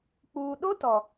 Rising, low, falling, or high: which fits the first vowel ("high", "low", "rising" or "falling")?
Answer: low